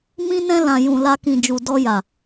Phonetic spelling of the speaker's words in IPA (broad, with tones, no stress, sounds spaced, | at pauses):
m ĩ˧ n ɛ̃˧ l ã˨ j ũ˨ l a˧ k ĩ˨ d͡ʒ u˨ d ɔ˧ j a˨